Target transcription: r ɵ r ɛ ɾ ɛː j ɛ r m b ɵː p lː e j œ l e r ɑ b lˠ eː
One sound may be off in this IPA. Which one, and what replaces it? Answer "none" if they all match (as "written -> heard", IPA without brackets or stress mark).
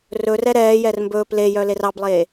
lː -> l